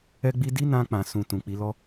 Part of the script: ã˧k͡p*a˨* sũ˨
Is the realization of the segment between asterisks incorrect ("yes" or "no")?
yes